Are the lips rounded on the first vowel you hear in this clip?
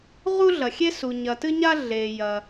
yes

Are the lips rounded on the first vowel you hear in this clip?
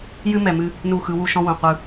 no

